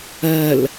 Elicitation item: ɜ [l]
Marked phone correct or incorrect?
correct